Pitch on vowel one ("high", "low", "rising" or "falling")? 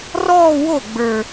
falling